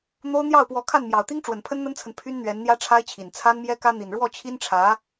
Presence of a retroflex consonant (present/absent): present